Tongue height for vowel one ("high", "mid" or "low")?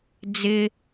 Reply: high